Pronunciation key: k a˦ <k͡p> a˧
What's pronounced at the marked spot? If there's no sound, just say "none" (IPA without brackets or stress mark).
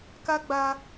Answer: ɡ͡b